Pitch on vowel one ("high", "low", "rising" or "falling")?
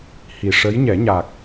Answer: low